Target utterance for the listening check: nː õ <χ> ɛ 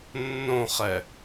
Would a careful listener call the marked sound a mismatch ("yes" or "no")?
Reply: no